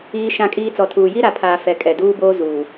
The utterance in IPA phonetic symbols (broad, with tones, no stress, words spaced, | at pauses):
iː˦ʃã˦˨kʼiː˦ t͡sɔ˨tʰuː˨ ji˦ɾa˨pʰaː˨ fɛ˨kʼɛ˨duː˦boː˦ zu˨